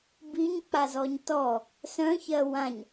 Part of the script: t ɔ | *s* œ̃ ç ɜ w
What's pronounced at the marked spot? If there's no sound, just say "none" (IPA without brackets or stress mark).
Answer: s